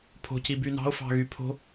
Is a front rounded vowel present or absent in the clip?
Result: present